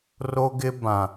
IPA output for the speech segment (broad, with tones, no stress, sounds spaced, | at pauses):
r o˦ ɡ ɪ˦ b ã˨